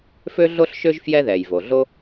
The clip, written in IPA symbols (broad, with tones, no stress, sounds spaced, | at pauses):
f ø˥ ɮ o˥ ɬ ʃ ø˥ ʒ f j ɛ˥ ð ɛ˩ j v o˩ ɮ o˥